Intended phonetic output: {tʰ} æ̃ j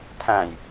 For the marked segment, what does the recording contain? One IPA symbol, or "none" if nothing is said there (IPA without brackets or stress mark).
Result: tʰ